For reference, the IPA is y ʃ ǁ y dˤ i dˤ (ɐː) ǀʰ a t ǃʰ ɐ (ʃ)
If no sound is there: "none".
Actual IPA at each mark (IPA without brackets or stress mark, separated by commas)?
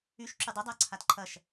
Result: ɐː, ʃ